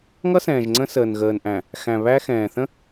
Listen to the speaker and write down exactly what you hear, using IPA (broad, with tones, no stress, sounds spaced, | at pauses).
ŋ ʌ˦ s ɛ̃ː˨ ʒ ŋ͡ǀ ə̃˦ s əː˨ n ɣ əː˨ n ʔ æ̃˨ | x æ̃˨ β æ˦ x ɛ̃ː˨ θ ə̃˦